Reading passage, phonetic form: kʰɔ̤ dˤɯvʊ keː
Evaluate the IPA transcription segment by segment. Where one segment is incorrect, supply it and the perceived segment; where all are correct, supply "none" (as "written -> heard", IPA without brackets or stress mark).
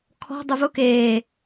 none